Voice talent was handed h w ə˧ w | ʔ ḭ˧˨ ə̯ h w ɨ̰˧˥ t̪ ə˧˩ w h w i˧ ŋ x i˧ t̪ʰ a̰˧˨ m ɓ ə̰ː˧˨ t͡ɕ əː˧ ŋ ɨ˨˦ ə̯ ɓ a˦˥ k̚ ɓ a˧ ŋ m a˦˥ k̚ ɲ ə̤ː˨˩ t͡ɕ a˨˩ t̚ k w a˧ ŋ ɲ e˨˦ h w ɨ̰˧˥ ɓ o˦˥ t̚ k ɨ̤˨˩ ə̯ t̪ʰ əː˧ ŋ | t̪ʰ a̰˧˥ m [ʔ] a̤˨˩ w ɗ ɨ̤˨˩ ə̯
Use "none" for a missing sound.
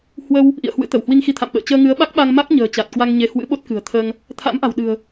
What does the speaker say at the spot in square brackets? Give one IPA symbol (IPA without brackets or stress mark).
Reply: ʔ